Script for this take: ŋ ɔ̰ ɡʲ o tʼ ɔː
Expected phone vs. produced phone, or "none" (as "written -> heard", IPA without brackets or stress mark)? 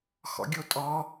ŋ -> x